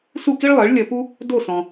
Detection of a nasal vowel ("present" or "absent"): present